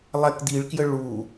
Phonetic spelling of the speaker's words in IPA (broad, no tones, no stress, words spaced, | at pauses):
lˠɛkd̪iɭkjə ɭu